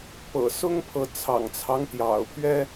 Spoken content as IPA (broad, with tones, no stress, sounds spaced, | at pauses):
p ɤ̰˨˩ s ʊ˦ ŋ pʰ ɤ˨˦ t͡sʰ ɑ̰˨˩ ŋ t͡sʰ ɑ˦ ŋ t̪ j ɑ̰˨˩ ʊ̯ pʰ ɥ ɛ˦